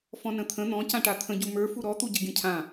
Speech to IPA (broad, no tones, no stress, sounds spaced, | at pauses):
f ɔ̃ n ə̃ t̪ʰ ə̃ n̪ ɔ̃ c ã ʈ a t̪ʰ ə̃ ɟ u m ə˞ f u ɾ ɔ t̪ u ɟ ə ɡʲ ə̃ cʰ ã